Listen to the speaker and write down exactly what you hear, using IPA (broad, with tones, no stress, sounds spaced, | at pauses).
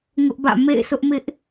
ŋ ʊ˦ ʔ b ä̰˦˨ m ḛ˦˨ ɪ̯ sʰ ʊ˦ ʔ m ɪ˦ ʔ